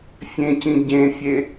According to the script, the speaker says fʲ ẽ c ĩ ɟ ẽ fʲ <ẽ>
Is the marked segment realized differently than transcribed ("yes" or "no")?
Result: yes